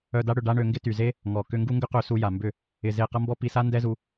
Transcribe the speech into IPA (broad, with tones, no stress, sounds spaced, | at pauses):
œ˧ d a˦ ɽ ʏ˧ ɖ a˦ ɳ ø˧ ŋ ɡ ɪ˦ t y˨ z e˦ | ŋ ɔ˨ k ʏ˧ ŋ ɡ u˦ ŋ ɡ ʏ˦ q ø˧ s u˧ j a˨ m b ʏ˦˨ | ɪ˧ z e˦˨ q ɐ˦ m b ɔ˦ p i˧ s a˦ n d ɛ˦ z u˧